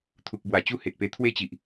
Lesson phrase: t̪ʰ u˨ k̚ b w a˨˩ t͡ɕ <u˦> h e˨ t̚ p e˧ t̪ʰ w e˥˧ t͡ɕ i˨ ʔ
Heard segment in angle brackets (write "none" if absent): u˥˧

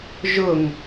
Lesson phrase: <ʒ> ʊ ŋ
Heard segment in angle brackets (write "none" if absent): ʒ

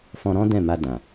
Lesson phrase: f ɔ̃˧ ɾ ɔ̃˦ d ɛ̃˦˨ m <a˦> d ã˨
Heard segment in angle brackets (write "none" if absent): a˧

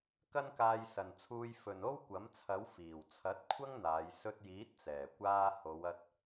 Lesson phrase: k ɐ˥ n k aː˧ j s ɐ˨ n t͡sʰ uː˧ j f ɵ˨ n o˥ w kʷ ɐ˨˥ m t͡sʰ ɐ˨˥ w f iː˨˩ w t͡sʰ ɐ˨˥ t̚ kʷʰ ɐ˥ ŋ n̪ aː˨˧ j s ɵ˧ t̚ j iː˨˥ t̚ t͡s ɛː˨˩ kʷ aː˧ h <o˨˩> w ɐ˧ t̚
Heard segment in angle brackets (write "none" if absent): o˨˧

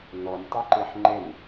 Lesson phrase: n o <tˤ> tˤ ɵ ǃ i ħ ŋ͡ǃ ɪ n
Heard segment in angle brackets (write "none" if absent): n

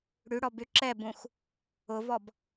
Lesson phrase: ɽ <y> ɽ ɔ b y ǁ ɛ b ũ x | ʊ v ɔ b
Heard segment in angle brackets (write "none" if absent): y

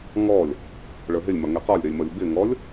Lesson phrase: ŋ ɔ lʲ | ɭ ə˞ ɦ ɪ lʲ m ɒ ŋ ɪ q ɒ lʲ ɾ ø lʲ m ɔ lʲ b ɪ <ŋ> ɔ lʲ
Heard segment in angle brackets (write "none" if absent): ŋ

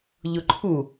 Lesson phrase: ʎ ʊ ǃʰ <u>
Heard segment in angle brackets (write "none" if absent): u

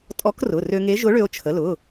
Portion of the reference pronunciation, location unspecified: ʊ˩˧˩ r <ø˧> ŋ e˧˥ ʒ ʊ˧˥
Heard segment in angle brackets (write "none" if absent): ø˧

